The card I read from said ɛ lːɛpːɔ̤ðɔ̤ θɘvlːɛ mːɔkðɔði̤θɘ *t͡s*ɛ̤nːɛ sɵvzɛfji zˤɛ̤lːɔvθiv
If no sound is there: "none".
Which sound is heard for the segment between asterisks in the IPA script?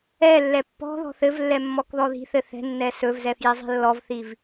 θ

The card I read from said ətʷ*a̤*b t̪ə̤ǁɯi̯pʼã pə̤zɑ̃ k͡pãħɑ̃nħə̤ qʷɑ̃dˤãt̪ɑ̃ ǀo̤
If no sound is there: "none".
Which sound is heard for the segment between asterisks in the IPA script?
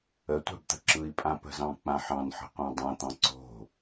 a̤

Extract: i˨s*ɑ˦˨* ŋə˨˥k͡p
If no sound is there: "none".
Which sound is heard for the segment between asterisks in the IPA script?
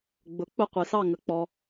ɑ˦˨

